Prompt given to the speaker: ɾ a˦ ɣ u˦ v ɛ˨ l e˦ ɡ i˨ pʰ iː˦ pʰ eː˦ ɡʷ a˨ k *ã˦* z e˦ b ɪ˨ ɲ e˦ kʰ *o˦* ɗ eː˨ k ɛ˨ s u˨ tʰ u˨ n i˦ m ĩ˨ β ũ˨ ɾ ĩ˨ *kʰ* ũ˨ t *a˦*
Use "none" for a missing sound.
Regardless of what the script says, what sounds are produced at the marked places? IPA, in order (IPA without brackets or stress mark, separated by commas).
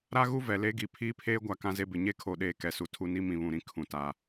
ã˦, o˨, kʰ, a˨